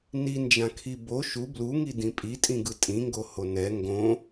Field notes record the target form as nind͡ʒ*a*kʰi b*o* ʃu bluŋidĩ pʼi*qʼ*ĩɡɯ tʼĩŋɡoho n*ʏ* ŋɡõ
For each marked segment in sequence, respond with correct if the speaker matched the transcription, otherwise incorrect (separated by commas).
incorrect, correct, incorrect, incorrect